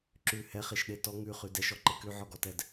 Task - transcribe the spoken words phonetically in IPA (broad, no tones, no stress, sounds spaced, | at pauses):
ǁ ʉ h ɛ χ e ʃ ɗ e t ɔ ŋ ʉ χ ʉ d ɛ ʃ ɔ ǃ e k ʉ ʕ ɔ ɡ ɔ t ɛ d